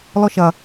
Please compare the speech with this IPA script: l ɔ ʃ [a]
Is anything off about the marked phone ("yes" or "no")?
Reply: yes